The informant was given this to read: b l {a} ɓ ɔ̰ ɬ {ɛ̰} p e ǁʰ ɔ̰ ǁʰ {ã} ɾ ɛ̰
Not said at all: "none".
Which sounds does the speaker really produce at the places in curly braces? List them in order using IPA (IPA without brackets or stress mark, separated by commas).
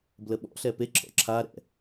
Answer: ə, ɛ, a